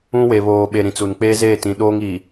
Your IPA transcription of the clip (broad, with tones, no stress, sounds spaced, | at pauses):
ũ˦ w e˨ β oː˨ ɓ e˨ ɾ ĩ˨ t͡s u˨ n k͡p eː˦ z eː˦˨ t ĩ˨ ɗ oː˦ ŋ iː˨